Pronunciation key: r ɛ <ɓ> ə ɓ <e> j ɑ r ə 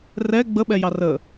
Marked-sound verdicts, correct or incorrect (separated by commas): incorrect, incorrect